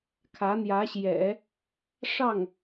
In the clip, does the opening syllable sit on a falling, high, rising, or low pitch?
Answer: rising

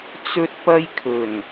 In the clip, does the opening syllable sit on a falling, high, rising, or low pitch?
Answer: high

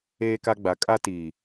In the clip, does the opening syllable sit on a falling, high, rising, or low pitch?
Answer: high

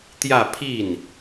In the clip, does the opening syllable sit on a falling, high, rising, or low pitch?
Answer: falling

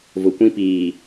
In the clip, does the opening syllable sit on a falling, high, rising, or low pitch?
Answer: low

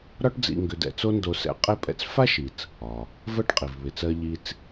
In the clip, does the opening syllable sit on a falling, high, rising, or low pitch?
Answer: high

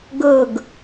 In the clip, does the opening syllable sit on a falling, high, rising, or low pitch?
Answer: falling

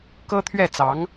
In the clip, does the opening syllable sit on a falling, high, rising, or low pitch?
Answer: high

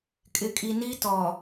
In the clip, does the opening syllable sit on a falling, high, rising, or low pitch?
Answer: low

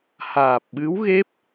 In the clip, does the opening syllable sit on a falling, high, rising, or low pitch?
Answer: low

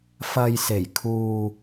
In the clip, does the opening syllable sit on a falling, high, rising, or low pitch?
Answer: low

